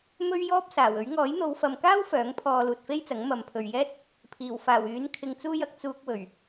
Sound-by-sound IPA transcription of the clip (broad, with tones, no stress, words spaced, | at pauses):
mɵ˥ɥjɔː˥p̚ saː˨˩wɵ˨˥ɥ ŋɔː˨˥jn̪o˨˧wfɐ˨mkaː˥w fœː˨˥ŋ pʰɔː˨ luː˨t̚fe˥jt͡sɐ˨˥ŋ mɐ˨m pʰɵ˨ɥjɛː˥t̚ | pʰiː˨˩wfaː˨˩w yː˨˥n kʰɪ˨ŋt͡suː˧jɐ˨k̚ t͡suː˧k̚ wɵ˨˩ɥ